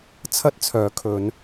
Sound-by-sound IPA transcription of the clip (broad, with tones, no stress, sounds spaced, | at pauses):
t͡sʰ ɐ˥ t̚ t͡sʰ œː˨˥ kʰ ɵ˨˧ n